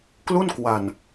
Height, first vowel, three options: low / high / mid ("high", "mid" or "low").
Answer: high